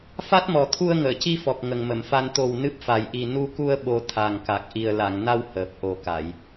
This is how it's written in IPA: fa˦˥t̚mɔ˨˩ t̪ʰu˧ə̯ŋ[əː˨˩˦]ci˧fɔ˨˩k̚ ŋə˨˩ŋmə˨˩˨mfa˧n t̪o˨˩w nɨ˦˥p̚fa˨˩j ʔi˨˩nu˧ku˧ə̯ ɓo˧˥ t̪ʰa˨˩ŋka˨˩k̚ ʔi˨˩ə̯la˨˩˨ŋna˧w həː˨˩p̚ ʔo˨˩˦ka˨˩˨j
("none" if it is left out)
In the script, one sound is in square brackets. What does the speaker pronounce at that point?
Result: əː˨˩˨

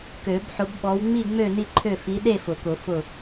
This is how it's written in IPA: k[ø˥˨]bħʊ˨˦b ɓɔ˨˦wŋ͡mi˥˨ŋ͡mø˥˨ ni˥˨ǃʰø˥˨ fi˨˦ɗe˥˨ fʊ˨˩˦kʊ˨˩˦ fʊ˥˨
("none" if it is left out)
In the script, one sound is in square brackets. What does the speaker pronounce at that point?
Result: ø˨˩˦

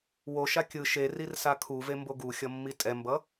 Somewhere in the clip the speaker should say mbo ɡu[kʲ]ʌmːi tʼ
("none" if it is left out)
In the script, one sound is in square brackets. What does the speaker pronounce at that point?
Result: xʲ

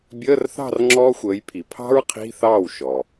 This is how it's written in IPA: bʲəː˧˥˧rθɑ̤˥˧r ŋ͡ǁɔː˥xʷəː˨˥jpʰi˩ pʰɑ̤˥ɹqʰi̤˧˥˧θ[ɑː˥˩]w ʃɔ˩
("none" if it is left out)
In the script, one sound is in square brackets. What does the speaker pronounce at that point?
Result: ɑː˥˩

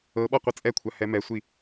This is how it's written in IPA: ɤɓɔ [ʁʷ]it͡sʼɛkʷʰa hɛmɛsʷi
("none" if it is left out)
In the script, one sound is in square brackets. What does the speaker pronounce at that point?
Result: qʷ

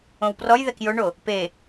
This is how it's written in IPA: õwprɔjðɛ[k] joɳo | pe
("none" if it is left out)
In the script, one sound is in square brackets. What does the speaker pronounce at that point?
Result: k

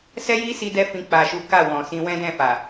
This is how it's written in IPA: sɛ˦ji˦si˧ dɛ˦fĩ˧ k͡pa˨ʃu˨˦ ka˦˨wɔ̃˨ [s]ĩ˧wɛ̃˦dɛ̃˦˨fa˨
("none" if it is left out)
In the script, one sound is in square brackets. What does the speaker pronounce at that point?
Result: s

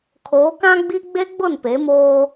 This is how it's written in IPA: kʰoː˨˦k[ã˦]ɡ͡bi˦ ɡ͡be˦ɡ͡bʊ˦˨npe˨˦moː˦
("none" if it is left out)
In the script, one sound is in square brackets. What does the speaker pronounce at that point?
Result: ã˦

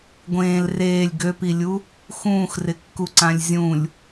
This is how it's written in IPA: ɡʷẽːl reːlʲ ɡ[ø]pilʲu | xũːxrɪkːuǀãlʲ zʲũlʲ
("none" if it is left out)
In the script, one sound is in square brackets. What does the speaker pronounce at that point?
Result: ø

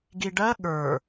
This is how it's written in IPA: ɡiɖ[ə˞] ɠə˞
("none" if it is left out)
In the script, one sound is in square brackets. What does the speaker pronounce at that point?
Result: ɜ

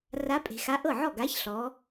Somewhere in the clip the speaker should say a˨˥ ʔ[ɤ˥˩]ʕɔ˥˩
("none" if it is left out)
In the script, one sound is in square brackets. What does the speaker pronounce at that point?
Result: ɤ˥˩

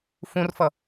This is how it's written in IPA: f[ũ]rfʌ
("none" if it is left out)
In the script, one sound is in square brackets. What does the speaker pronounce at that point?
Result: ũ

